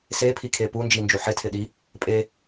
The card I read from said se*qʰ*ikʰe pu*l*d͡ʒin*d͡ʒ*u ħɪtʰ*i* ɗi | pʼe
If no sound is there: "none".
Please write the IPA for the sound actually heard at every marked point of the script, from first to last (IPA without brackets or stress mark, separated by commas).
pʰ, n, d͡ʒ, ɪ